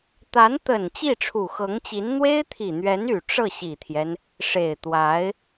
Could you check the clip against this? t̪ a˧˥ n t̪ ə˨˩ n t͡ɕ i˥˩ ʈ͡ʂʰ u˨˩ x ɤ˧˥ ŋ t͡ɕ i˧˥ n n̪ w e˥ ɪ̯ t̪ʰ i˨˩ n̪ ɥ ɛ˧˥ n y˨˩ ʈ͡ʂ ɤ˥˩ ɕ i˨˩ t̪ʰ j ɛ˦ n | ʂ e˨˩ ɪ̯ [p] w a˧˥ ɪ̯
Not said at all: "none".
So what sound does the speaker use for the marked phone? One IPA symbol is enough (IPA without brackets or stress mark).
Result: t̪